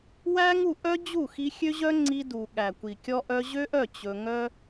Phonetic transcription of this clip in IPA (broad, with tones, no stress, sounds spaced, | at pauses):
w æ˦ ŋ u˦˨ ʔ œ˦ d͡ʑ u˦˨ x i˧ xʲ ø˦ ʑ œ˦ ŋ͡ǀ i˧ d u˨ ɠ æ˨ kʷ i˨ kʲ ɔ˧ ʔ œ˧ ʑ ø˦ ʔ œ˦˨ t͡ɕ ɵ˧ ŋ œ˦